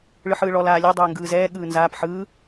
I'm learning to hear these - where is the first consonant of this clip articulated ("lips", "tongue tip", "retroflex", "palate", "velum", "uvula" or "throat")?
retroflex